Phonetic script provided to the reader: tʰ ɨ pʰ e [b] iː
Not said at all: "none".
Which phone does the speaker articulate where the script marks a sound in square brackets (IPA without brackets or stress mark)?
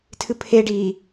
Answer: ɖ